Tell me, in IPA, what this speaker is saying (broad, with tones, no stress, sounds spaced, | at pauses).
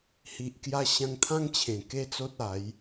h i˨ ʔ k j a˧ ɕ ã˧ ŋ t̪ʰ ã˦ ŋ t͡ɕʰ ẽ˨˩ k e˦ t͡s o˦ t̚ a˨˦ j